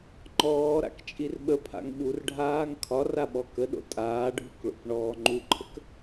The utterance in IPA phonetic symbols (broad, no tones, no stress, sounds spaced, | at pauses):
ŋ͡ǃ ɔː ɾ a̰ k t͡ʃʼ i r ɓ ə pʰ a̰ ŋ ɓ u r ɖʱ aː ŋ kʰ ɒ r a ɓ ɔ k ə ɗ o̰ tʼ aː ɖʱ u k ɭ o̰ k ɳ ɔː ŋ͡ǃ u ǃʰ ə k